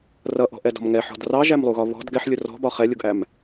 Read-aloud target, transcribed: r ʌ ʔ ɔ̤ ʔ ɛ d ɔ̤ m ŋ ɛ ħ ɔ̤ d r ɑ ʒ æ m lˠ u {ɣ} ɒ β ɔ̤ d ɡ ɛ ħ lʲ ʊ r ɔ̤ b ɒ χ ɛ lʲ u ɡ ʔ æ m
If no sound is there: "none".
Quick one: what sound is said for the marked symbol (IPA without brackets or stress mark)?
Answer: ɣ